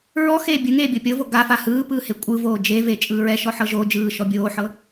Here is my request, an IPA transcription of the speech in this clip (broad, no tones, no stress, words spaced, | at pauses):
ɹɔ xeːbʲɯŋeː bʲɤpʲɤvo ɡafa hɯːpɯː hekʷʼɯvoː d͡ʒeve t͡ʃʼɯːɹɛ ʃɔħɤʒod͡ʒɯː ʃɔbʲoːħɤ